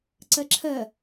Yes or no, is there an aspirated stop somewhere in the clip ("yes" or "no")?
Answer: yes